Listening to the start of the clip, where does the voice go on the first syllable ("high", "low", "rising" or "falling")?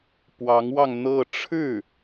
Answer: rising